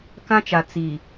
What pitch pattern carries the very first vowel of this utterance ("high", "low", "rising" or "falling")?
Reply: high